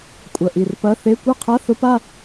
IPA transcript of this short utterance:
kʷʼɐ˨˩ʔi˨˩rpɐ˧˥˧ θe˧˥˧ kʷœ˥˧qʰa˧˥˧θʊ˧˥˧pa˥˧

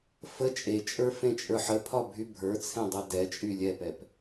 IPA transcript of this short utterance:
fə t͡ʃʼet͡ʃʼə˞fẽt͡ʃʼə˞ħ əpʰɒbʱy bʱə˞t͡sʰẽdˤʌ dɛt͡ʃʼy lʲɛpɛp

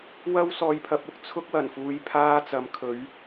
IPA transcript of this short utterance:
wɐ˥wsɔː˧jpʰɐ˧p̚ʊ˨˥k̚ t͡sʰʊ˥k̚wɐ˨˩nfuː˨˧j pʰaː˥t͡sɐ˨˥mkʰɵ˨˥ɥ

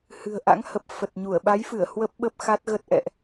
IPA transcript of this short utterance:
hɨ̤˨˩ə̯ ʔa̰˧˥ŋ hə˨˩p̚ fə˨˩t̚ɲu˧˩ə̯ ɓa˨˦jfɨ˧˩ə̯ hwə˦˥p̚ ɓə˦˥p̚xa˦˥t̚ɣə˦˥t̚ ʔɛ̰˧˨ʔ

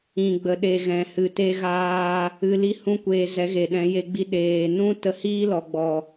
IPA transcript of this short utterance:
ĩ˨ɡ͡bə˨ɗe˨ ɣɛ̃˨hɨ˨te˧ ɣaː˧ | ɨ˧li˦ hũ˦kʷeː˧ zɛ˨˦ɣe˨ɗɛ̃˨˦ je˧ɡ͡bi˧ ɗeː˨ nũ˦ tə˧hiː˦lɔ˨ɡ͡bɔ˨

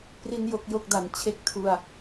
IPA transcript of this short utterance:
pri˧n jo˥˩k̚jo˥˩k̚da˨˩n t͡ɕʰe˦˥k̚tʰu˧a̯

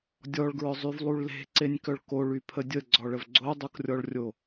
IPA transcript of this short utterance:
dʲɔɭɡɹœzˤyvlˠuɭ le̤ǀenʲkœɭ koɭypʰə dʲəɡ͡ǀɔɭəv ɡ͡ǀodˤukrʲɔɭrʲo

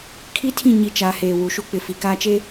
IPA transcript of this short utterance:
kʰi˦tʰĩ˦˨ ɲi˦ t͡ʃa˨˦heː˨ wu˨ʃu˦k͡pɪ˨ fi˨kaː˦t͡ʃe˦

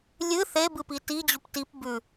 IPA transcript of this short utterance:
lʲɨ θebɨpi tid͡ʑup tip bʉ

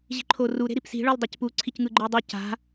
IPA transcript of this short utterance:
ʑi̤ǃʰoru ɾe̤ɾipsi̤ ɭɯlˠdˤecpu ǀʰicŋɯɡ͡ǃɯə̯dˤɯ ca̤

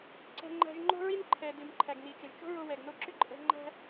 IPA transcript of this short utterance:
ǀɛ̤˧ ŋ͡ǃæ̤˧ʒŋ͡ǃo̤˥ɹi˥nǃʰɛ˩ dɨ˩mǃʰæ˩ɡni˩t͡ʃə˩ʒ t͡ʃo̤˥ɹo˧ wɛ˩ɡno˧ǁʏ˥ ǃʼɛ̤˧ ŋ͡ǃæ̤˥

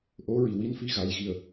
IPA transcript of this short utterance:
ʔo˧˥ɹi˨˩wi˧˥nfi˧ ɣa˨˩j ɣi˨˩ə̯

